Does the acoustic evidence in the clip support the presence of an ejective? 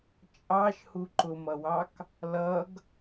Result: yes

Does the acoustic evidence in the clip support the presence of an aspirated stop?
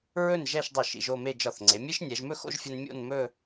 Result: no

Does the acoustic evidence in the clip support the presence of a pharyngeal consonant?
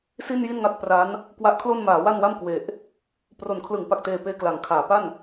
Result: no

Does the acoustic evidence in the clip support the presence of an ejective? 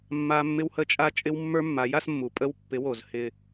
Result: yes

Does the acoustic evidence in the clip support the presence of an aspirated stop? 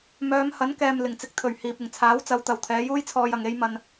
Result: yes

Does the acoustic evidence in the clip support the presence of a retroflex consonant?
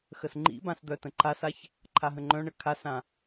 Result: yes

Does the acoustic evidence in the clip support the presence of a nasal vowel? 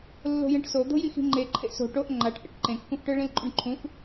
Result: yes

